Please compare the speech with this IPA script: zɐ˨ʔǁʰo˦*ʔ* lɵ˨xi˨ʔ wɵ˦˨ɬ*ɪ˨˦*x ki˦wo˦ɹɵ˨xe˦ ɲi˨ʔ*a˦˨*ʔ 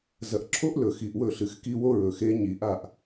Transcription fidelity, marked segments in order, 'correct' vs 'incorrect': correct, incorrect, correct

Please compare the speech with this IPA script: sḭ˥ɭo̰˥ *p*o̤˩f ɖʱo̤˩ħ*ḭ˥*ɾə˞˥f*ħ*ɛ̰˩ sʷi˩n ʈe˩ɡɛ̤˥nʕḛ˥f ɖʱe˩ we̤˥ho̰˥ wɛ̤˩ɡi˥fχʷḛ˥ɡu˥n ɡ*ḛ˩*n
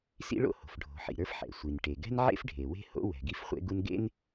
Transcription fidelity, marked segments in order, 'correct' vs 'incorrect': incorrect, incorrect, correct, incorrect

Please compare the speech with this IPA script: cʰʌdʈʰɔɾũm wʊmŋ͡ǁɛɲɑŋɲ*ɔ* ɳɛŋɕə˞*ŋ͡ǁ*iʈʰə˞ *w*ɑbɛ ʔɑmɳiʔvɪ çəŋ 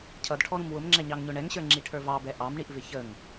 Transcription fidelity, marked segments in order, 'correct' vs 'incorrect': incorrect, correct, incorrect

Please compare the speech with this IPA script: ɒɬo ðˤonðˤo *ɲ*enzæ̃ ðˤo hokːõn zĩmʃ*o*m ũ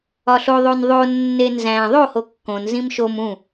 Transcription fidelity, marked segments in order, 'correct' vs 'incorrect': incorrect, correct

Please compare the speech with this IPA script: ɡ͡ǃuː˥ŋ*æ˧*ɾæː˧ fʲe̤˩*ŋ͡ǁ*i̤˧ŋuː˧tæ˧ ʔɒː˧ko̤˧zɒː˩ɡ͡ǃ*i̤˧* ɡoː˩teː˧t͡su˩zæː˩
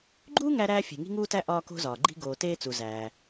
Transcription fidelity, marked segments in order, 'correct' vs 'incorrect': correct, incorrect, correct

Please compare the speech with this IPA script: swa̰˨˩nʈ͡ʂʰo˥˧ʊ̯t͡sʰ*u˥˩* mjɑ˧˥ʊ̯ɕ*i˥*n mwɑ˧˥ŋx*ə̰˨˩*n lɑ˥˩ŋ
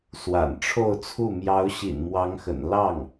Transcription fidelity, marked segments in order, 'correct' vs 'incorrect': correct, incorrect, correct

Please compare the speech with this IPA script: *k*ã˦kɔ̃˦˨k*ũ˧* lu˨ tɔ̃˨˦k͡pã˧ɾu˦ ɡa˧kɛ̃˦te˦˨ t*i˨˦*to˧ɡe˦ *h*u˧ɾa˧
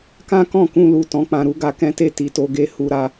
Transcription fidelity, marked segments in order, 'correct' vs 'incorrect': correct, correct, incorrect, correct

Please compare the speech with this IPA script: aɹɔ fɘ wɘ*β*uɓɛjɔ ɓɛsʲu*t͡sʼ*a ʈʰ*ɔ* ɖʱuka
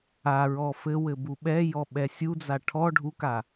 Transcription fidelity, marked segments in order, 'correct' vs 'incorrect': incorrect, incorrect, correct

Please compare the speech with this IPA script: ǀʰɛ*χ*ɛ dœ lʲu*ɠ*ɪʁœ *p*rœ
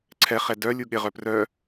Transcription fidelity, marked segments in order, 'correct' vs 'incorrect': correct, correct, correct

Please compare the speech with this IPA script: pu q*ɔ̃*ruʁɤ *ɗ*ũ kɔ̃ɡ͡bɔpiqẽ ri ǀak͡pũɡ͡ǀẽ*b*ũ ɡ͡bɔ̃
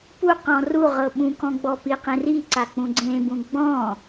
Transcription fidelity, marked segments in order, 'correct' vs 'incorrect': correct, incorrect, correct

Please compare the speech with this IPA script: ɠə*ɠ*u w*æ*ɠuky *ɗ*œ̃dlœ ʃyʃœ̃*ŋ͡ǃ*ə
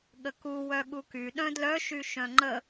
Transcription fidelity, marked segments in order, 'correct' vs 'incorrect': incorrect, incorrect, correct, correct

